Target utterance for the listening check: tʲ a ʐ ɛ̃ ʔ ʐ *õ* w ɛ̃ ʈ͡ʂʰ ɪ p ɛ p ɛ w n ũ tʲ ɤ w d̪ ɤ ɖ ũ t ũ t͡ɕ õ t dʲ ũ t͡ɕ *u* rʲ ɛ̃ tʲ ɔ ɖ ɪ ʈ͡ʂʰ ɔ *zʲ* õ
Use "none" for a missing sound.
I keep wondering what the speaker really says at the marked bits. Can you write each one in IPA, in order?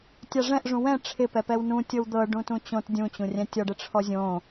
ũ, ũ, zʲ

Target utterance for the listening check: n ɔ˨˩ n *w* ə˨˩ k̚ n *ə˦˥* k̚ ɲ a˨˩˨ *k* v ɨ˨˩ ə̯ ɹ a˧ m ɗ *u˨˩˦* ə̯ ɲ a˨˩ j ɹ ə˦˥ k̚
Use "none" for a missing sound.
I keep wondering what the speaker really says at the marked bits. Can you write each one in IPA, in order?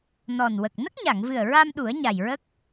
w, ə˦˥, ŋ, u˨˩˦

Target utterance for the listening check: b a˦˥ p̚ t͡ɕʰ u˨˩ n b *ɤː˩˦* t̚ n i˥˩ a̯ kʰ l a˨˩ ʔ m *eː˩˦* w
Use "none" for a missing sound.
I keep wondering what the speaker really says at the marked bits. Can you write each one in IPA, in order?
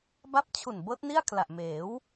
ɤː˦˥, eː˩˦

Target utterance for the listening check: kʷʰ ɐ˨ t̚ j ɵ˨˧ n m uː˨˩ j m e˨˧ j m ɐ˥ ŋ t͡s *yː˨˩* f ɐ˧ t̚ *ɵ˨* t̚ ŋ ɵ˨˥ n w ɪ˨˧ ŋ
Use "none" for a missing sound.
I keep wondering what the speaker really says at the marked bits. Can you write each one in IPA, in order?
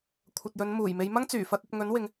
yː˨˩, ɵ˨

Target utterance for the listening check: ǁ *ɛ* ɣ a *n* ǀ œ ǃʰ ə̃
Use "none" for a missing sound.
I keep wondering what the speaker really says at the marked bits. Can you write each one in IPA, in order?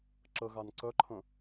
ə, n

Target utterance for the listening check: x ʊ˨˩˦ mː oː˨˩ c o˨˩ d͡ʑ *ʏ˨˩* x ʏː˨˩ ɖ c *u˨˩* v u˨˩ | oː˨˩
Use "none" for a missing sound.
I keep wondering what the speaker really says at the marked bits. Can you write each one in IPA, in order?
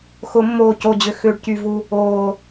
ʏ˨˩, y˨˩

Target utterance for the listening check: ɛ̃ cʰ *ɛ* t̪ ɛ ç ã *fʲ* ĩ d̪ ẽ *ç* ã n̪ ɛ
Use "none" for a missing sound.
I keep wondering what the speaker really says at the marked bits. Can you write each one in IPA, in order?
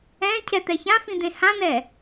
ɛ, f, h

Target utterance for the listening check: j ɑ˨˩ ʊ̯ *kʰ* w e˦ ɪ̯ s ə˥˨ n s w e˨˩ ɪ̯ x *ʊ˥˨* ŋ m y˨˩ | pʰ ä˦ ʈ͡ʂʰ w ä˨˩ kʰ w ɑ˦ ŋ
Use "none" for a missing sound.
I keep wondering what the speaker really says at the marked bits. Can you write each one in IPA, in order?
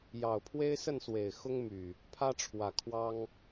pʰ, ʊ˦

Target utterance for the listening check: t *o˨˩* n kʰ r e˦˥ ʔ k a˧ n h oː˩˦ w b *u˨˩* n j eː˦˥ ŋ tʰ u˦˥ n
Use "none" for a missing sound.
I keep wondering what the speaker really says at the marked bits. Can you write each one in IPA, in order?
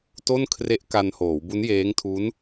o˥˩, u˦˥

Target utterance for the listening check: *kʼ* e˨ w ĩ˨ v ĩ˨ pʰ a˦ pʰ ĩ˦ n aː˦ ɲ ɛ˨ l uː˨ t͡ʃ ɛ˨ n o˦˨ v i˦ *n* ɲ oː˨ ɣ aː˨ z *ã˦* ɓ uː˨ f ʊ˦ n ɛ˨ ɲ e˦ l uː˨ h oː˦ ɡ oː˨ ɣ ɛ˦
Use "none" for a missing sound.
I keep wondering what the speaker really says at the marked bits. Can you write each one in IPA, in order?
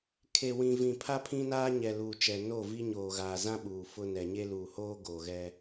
kʰ, none, ã˦

